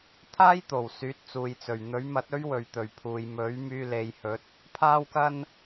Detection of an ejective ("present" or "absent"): absent